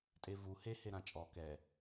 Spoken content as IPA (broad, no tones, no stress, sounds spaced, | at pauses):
tʼ e v u h e h e ɾ ã t͡ʃʼ ɔ k ɛ